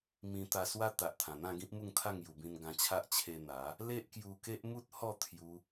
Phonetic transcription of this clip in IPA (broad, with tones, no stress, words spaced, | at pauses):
mĩ˧t̪a˧swa˦ t̪a˨ʔt̪ʰã˨˩n̪ã˥˧ ɡĩ˦p̚mu˥˧ŋt̪ʰa˥˧ŋ ju˨˩bĩ˧nɡã˧t͡ɕʰa˦ʔ t͡ɕʰe˧ n̪a˨˦ | le˦ʔkju˧ke˦ʔ mu˦t̚hɔ˥˧ t̪ʰju˧